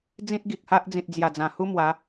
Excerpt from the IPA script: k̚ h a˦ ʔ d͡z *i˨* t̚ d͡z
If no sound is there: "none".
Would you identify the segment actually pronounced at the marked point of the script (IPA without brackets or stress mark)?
ĩ˨